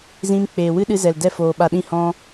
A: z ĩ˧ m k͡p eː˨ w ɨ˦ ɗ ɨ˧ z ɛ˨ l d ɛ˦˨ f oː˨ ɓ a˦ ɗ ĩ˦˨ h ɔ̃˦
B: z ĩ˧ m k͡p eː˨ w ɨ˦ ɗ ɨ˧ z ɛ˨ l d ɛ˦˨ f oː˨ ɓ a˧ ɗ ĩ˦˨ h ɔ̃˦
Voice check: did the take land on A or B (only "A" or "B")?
B